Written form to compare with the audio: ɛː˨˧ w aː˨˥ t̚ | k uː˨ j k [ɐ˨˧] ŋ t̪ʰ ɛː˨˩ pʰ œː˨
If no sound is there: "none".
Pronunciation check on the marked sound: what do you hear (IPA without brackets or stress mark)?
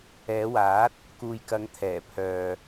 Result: ɐ˨˧